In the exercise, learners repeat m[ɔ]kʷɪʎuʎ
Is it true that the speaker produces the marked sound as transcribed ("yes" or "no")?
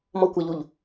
yes